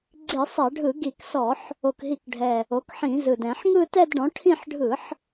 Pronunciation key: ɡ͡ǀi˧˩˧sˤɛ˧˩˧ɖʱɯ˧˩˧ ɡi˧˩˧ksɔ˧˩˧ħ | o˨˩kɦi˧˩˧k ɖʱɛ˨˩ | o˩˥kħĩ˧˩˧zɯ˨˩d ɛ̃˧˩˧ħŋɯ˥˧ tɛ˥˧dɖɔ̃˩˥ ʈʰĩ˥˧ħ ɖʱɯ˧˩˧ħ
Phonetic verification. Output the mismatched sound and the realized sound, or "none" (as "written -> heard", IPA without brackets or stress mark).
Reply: none